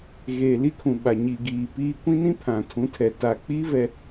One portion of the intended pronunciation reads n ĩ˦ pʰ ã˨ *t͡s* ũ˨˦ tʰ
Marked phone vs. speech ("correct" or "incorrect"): incorrect